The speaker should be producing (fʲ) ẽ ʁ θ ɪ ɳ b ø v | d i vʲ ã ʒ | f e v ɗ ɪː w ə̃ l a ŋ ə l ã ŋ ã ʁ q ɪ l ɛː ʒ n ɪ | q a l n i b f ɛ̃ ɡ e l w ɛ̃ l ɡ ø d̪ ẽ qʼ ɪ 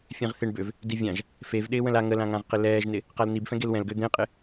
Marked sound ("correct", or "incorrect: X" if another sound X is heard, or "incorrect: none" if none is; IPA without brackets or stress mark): correct